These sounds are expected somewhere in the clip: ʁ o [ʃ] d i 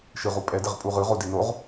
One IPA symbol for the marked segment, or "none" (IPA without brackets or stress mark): none